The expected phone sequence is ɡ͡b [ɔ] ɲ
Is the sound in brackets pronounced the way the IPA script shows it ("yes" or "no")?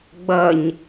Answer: no